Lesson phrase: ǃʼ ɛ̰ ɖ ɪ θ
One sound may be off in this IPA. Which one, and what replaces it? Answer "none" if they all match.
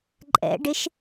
θ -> ʃ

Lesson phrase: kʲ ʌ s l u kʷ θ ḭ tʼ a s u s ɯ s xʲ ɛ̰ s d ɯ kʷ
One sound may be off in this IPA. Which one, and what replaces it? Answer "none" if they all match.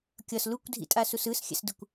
θ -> dʱ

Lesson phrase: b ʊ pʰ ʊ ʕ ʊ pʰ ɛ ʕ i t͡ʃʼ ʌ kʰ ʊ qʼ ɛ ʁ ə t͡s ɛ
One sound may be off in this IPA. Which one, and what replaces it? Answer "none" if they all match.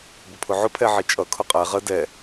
t͡s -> d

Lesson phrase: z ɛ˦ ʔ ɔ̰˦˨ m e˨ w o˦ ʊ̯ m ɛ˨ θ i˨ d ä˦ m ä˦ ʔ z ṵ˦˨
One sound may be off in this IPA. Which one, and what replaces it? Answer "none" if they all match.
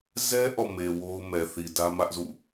none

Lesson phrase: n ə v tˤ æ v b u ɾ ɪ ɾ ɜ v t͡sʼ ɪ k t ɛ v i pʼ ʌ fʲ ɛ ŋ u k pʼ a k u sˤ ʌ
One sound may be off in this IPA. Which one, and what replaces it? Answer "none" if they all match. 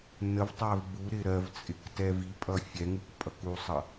a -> ʌ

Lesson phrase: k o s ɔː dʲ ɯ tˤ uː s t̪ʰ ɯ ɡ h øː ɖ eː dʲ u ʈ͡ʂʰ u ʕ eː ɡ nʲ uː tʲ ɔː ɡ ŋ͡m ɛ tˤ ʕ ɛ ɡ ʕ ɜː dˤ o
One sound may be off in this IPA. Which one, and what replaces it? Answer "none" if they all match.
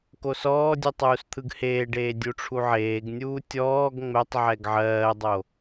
øː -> eː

